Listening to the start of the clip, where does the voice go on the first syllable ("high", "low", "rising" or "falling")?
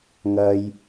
high